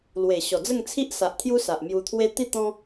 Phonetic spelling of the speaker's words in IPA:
l w e˨˩ ɕ ɔ˨˩ d͡z ə˥˧ ŋ t͡sʰ i˦ ʔ s a˨ ʔ t̪ʰ j u˦ s a˨ ʔ m j u˧ t̪ʰ w e˦ t̪ i˥˧ t̪ ɔ̃˦

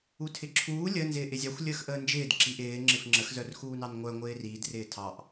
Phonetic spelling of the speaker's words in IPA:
u tʰ ɪ ǁʰ uː lʲ ə n z ɪː ʔ ɪ zʲ ɑ xʷ lʲ əː x ʔ əː n d͡ʒ ɪː d ǁ i ʔ ɪː ŋ͡ǁ ɪ f ŋ͡ǁ ə x z œ r x uː n ɑ n ŋʷ œ ŋʷ ɪː r iː d r ɪː tʰ ɑ ʔ

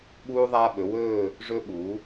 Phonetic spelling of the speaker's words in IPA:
ɓ uː˧ ðˤ aː˧ ɓ ɵ˩˧ w ɵː˥˧ | ʐ ɵ˧ ɓ u˩˧

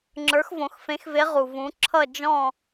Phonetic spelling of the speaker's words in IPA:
ŋ͡ǁ ə˞˨˥ x v õ˩˧ x f ẽ˨˥ x v e˨˥ ʁ u˩ v ũ˩˧ ǁʰ ʌ˦˨ d͡ʒ ɔ̃˦˨

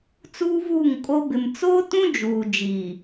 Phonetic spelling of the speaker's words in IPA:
t͡s uː˦ v uː˦˨ ŋ kʼ o˦ b ɪ˨ m t͡s o˦ t ũ˦ d͡ʒ uː˨ d͡ʒ iː˨

